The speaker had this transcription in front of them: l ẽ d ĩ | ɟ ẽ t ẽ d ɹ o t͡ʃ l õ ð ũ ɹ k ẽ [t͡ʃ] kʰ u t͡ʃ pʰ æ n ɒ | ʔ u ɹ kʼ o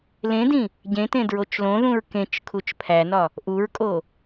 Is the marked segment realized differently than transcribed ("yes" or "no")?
no